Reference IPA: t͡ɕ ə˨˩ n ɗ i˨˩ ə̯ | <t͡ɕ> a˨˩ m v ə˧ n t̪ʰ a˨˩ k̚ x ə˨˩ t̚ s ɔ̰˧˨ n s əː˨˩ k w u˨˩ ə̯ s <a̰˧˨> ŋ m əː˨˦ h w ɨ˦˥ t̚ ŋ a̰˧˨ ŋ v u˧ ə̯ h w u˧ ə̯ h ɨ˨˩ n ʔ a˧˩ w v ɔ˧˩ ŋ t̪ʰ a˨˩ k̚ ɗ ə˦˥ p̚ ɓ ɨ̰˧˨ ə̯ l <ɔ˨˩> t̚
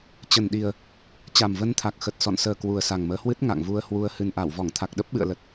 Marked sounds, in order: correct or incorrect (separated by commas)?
correct, incorrect, incorrect